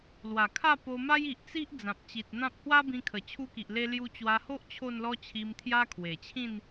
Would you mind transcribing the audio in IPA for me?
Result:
lwa˨˩kʰa˥˧po˧ma˦j i˨ʔt͡si˦ʔ d͡zã˨p̚ t͡ɕi˨t̚n̪ã˦p̚ hwa˦bĩ˧ kʰə˨˩t͡ɕʰu˦ki˨ʔ le˧lju˧t͡ɕwa˧ho˦ʔ t͡ɕʰo˥˧nlɔ˦t͡ɕʰi˧m t̪ʰja˦kʰwe˨˩t͡ɕʰĩ˥˧n

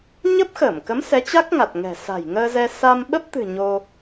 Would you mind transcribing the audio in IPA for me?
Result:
ɲə˦˥p̚xəː˧˩mkə˨˦m sɛ˨˦t͡ɕa˦˥k̚ŋa˨˩t̚ŋɛ̤˨˩ sa̤˨˩jŋəː˧zɛ˧ sa˧mɓə˦˥p̚t̪ɨ̤˨˩ ɲo˧

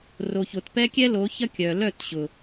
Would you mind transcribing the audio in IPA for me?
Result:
ro˧ço˧t pɛ˦kʲɛ˦lo˨˦çɐ˦ kʲœ˨lœ˦˨tɕʊ˨

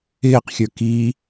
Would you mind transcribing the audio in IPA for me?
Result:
ɪːqxʲə˞ ki

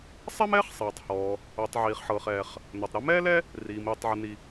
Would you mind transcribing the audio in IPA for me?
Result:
sˤɛ˥mɛː˥χ sˤɛː˩tˤhɔː˩ | o˩tˤ ʕiː˩χħɤː˩χɛː˩χ | no˩tˤ ɾɛ˥mɛː˥ lɛ˥ | riː˩miː˩tˤ ʕɯ˩ni˩

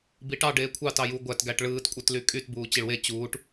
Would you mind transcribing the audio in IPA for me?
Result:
biʈɑɖeː kʷʰɑt ɑju ɡʷætɡæʈ ɭɯːtkʷʼɯtly kʼyt buːt͡ɕiɭwe t͡ɕuːʈ

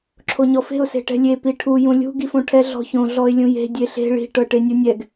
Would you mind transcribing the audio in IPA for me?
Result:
ǁʰoɲɔfe̤ʊ̯ se̤ʈɛ̤lʲe piʈʰu jũlʲṳ ɡifõʈʰɛ ɮɔ̤çõ ɮɔɪ̯lʲũje̤ dʲeɬe̤ ɭi̤ ʈɤʈenʲunʲɛɡ

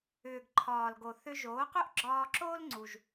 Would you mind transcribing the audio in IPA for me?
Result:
ʏː˩ɡǃʰɒː˩lɡo˩ θʏ˧ʒoː˩˥qʏ˥ʔ ɡ͡ǁɒː˧ǁoː˥lŋ͡ǀu˩ʒ

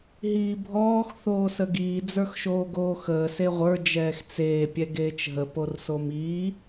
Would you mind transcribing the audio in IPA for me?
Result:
ɦiːbʱɔːx θoːsəɡiː d͡zə˞xʃoːɡoːxəː seʁʷə˞ d͡ʒɛːxt͡seː pʲɛɡeːt͡ʃɦə porsomiː

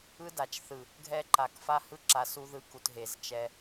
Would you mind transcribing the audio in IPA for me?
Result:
ɯ˦da˨t͡ʃθɯ˨ | ɡʱɛ˦ǃa˨k fa˦hɯ˦ǁa˨ su˦ðɯ˦ku˨t ɦe˨zt͡ʃɛ˦

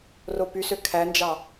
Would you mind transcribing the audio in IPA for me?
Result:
ropysø kʰænd͡ʒɑ

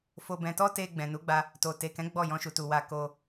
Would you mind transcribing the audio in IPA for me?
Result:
fo˧bɛ̃˧ tɔ˦te˧ ɡ͡bɛ̃˨nu˨˦ɡ͡ba˧ | to˨ te˨kɛ̃˨˦ ɡ͡bɔ˦˨ jɔ̃˧ʃu˨tu˨wa˧ ko˧

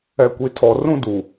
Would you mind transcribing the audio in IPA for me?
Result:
ɛ˨kʷi˨tʰɔ˨ rũ˦du˨

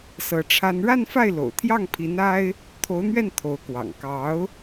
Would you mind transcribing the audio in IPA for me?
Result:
sɤ˧˥ʈ͡ʂʰa˥n ɻa˥˧nfa˥˩ɪ̯lo̰˨˩ʊ̯ t̪ʰjɑ˥˩ŋpʰi˧˥n a˥ɪ̯ | t̪ʰo˧˥ʊ̯n̪ɥɛ˥˩n t̪ʰo˧˥ʊ̯kwɑ̰˨˩ŋ kɑ˧˥ʊ̯

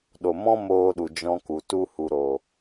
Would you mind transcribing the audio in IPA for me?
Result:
ɗo˨ mɔ̃˦moː˧ɗu˨ d͡ʒɔ̃˧ku˨ tu˧hu˨ɾo˨

